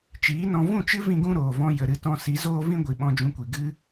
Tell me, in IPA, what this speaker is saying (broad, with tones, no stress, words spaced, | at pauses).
t͡ʃiː˨˦nɔ̃˧ vũ˦˨t͡ʃɨ˦ vĩ˦ɡũ˦ ɾoː˨vɔ̃˧ jə˨ɾɨ˧tɔ̃˧ si˨˦zoː˦vĩ˦ ɡʷi˨ɓɔ̃˧d͡ʒũ˧kʷi˨ ɡɨ˦